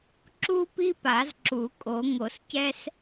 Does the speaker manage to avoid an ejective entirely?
no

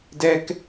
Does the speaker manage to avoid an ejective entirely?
yes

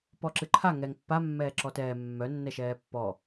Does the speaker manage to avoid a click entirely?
no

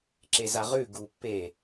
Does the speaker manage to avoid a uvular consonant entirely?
no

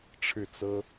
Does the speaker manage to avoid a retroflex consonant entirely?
no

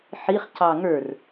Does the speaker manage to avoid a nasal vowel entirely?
yes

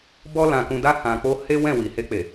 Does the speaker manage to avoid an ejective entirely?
yes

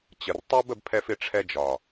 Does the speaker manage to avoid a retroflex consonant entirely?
no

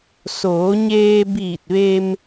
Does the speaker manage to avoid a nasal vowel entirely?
yes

